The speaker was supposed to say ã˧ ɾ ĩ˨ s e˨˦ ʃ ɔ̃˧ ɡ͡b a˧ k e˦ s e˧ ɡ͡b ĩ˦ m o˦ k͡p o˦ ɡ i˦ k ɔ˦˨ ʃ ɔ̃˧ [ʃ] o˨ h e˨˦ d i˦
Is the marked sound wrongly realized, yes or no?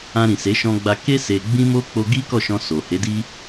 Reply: yes